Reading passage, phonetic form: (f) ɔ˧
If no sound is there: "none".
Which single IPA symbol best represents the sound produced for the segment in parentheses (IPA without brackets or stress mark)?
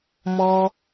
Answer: m